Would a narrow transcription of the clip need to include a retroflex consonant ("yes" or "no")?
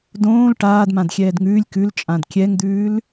yes